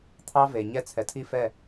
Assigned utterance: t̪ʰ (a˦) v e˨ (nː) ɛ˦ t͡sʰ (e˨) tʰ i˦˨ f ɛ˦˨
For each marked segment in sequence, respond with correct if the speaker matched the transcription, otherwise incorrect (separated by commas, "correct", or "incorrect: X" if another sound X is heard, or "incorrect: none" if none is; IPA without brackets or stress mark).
incorrect: ɑ˦, incorrect: ɲ, incorrect: ɛ˨